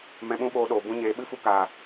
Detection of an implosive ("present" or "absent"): present